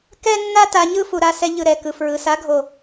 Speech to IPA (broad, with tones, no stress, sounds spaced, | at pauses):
k ɛ˦ nː a˦ t a˧ ɲ ɯ˦ f u˨ ɾ a˧ s ɛ˧ ʎ ɯ˨ ɾ ɛ˨ k ɯ˨ f ɹ ɯ˨ s a˨˦ ɡʱ o˨